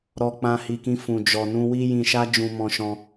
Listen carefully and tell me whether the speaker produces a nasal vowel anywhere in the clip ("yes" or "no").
yes